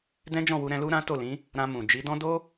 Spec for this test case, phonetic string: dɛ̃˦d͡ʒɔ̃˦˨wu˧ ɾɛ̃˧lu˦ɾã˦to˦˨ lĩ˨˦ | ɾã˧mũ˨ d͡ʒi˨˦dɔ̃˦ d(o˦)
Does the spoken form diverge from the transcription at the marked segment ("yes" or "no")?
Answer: no